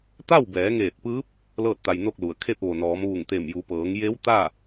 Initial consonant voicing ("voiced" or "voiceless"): voiceless